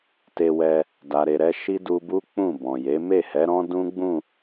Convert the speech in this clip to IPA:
t e˧ w ɛ˧ | d a˨ ɾ e˨ ɾ ɛ˧ ʃ i˦ d u˧ b u˦ k͡p ũ˦˨ b ɔ̃˨ j e˨˦ m e˦˨ h ɛ˨˦ ɾ ɔ̃˦ d ũ˦ ɡ͡b ũ˦˨

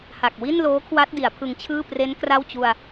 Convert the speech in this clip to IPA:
h a˨˩ k̚ w i˥˩ n l oː˦˥ kʰ w a˦˥ t̚ d i˩˦ a̯ pʰ ɯ˧ ŋ t͡ɕʰ ɯː˥˩ p r e˦˥ n k r a˥˩ w t͡ɕ u˧ a̯

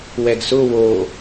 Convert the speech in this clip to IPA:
w ɛ ɡ s ʊ w o

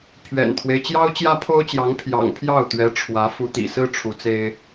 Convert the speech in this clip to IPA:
pʰ ɥ ɛ̰˨˩ n t̪ʰ w e˦ ɪ̯ t͡ɕ j ɑ˥ ʊ̯ t͡ɕ j ä˥ pʰ o˥ ʊ̯ t͡ɕ j ɑ˧˥ ŋ pʰ j ɑ̰˨˩ ŋ pʰ j ɑ˥˩ ʊ̯ t̪ ɥ ɛ˧˥ ʈ͡ʂʰ w ä˧˥ f u˧˥ t̪ ḭ˨˩ s ɹ̩˥ ʈ͡ʂʰ u˧˥ t͡s e˥ ɪ̯

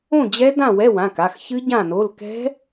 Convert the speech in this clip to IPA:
õ˥˨ d͡ʑ ɛ˦˥ d ã˥˨ w ɛ˧˥˧ w ã˩˧˩ k a˩˧˩ x ç ɨ˦˥ ɟ ã˥˨ n o˧˥˧ l k ɛ̤˦˥

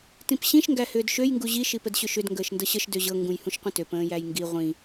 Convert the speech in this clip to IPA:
t ĩ p ɕ ĩ ʃ ŋ ɡ æ h ʏː d ʃ ø j ŋ ɡ u ʑ i ʃ i p ə d ɕ ʏ ʃ ʏ d ŋ ɡ əː ʃ n d ɤ ɕ ə ʃ d ø ʑ ɤ ŋ ɡ ũ j h ũ ʃ qʷ ə̃ t ø p ə̃ː j æ j ŋ ɡ i ʁʷ ĩ

